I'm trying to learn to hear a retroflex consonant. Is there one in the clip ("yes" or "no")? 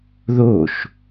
no